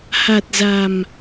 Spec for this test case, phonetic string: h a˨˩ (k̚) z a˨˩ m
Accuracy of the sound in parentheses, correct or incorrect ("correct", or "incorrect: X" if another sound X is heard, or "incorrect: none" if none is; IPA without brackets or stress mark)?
incorrect: t̚